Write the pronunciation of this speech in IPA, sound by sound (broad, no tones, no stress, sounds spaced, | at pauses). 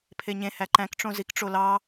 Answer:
pʰ e ɲ ẽ h æ ǃ æ̃ k ʈ͡ʂ õ z i k ʈ͡ʂ o l ɑ